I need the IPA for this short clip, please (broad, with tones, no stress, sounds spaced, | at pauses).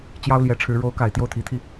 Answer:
t͡ɕ j ɑ˥ ʊ̯ l j ɛ˧˥ ʈ͡ʂʰ ɻ̩˧˥ ɻ o˧˥ ʊ̯ k a˨˩ ɪ̯ t̪ j o˥˩ ʊ̯ t̪ʰ i˧˥ t̪ʰ i˧